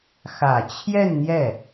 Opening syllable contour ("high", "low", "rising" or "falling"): low